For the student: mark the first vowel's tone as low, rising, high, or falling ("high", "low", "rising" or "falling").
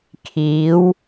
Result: rising